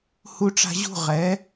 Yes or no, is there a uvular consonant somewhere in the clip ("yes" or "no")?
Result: yes